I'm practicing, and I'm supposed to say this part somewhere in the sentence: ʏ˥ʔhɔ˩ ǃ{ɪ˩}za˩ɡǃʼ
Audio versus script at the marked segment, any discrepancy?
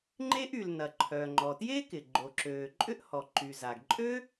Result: yes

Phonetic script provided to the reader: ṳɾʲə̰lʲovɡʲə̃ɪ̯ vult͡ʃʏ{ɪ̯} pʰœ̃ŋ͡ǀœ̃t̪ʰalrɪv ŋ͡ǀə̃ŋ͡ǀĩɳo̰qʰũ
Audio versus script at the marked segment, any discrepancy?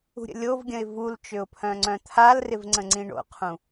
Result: yes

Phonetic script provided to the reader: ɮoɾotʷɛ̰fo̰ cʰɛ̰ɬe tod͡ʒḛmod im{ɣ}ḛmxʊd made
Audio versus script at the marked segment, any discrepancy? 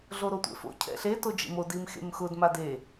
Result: yes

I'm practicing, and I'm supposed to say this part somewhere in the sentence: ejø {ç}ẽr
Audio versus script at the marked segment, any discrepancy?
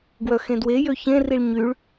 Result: no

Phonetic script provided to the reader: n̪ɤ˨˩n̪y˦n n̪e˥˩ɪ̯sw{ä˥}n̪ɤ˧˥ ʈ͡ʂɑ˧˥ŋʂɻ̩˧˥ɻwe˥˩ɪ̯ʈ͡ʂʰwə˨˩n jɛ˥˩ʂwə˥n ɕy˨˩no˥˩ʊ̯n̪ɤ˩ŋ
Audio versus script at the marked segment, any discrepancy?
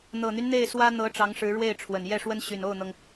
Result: no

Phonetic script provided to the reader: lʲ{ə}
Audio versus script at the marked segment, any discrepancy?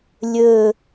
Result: yes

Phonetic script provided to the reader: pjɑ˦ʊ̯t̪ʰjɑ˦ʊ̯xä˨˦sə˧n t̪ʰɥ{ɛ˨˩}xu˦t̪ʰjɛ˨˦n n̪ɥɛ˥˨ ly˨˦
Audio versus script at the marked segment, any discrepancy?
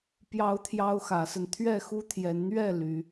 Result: yes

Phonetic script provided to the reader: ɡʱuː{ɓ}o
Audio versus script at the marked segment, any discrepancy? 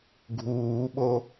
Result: no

